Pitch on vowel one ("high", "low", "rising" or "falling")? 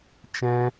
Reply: high